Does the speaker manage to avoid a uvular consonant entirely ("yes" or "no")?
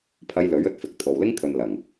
yes